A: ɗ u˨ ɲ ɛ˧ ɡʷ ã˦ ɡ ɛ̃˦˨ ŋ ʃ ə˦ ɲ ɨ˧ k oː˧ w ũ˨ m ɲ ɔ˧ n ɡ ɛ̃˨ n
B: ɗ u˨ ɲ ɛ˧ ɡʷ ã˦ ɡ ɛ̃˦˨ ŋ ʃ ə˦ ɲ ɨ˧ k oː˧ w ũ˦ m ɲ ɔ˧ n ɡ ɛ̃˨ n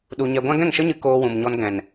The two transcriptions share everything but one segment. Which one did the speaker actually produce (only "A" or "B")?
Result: A